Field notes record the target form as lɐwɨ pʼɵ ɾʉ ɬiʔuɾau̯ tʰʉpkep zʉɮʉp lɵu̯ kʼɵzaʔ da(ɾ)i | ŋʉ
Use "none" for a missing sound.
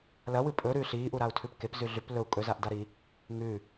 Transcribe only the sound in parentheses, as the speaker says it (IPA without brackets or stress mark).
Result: ɾ